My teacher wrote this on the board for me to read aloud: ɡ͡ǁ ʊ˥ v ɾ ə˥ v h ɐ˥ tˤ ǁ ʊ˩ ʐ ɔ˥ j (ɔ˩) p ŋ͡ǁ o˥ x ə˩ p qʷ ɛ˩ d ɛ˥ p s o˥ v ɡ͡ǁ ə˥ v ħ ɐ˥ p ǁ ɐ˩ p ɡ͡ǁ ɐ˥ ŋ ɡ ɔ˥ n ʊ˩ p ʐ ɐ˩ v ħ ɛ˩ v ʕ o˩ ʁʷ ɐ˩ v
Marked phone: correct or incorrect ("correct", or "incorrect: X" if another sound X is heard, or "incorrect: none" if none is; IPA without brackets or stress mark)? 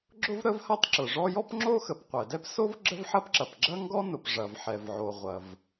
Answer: incorrect: ɔ˥